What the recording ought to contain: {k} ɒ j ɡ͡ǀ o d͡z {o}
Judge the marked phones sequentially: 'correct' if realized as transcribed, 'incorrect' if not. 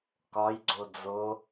correct, correct

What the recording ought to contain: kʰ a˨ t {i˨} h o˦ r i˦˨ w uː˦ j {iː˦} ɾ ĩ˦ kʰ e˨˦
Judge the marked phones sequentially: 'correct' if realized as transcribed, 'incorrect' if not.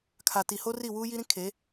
correct, incorrect: i˦

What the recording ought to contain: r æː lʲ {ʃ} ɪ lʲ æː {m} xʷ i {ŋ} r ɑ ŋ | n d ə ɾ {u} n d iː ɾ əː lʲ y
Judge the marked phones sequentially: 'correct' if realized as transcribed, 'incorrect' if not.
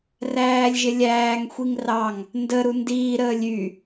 incorrect: ʒ, incorrect: ŋ, correct, correct

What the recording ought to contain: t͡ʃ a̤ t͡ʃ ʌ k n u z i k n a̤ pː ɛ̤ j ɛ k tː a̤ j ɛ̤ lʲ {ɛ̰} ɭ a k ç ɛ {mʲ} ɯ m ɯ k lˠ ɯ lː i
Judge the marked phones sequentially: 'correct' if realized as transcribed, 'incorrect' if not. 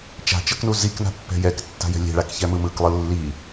incorrect: ɛ̤, incorrect: m

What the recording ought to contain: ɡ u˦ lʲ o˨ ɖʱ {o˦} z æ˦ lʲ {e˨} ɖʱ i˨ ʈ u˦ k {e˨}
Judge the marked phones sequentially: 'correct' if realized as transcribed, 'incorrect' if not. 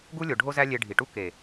correct, incorrect: e˧, correct

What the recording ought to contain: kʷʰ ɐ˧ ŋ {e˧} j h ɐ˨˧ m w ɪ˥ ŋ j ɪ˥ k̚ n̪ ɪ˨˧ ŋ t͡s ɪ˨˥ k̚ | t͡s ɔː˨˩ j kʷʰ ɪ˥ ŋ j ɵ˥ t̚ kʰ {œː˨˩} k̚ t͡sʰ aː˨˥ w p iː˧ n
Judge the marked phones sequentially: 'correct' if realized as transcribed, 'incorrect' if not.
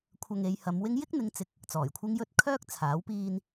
incorrect: e˨˧, incorrect: œː˥

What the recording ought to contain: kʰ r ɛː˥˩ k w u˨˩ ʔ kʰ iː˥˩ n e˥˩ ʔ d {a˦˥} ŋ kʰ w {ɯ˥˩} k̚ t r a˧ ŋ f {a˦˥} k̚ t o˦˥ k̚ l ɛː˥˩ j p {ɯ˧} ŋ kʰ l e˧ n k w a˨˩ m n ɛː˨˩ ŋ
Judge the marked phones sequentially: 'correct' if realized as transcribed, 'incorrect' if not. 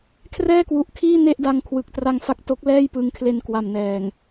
incorrect: a˧, incorrect: ɯ˨˩, correct, correct

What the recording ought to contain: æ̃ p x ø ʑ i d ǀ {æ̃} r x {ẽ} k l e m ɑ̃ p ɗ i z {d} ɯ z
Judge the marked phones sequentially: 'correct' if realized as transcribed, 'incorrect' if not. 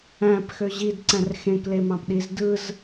correct, correct, correct

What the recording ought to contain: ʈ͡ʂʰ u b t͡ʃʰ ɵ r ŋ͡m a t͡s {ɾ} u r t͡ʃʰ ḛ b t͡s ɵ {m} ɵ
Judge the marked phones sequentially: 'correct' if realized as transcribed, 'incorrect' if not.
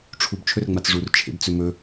incorrect: ʐ, correct

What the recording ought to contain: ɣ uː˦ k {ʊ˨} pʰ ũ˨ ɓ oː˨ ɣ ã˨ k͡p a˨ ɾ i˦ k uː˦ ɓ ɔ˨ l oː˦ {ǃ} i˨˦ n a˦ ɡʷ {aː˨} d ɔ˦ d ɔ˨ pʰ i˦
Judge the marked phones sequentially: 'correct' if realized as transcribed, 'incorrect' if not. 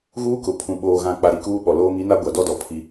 correct, incorrect: ŋ, incorrect: a˨

